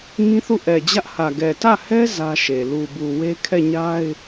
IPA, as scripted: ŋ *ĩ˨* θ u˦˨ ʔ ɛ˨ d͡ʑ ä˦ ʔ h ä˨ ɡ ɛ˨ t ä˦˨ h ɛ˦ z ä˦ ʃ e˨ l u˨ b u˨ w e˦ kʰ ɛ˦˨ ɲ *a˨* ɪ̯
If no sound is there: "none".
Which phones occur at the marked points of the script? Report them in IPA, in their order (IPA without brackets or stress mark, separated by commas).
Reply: ĩ˦, a˦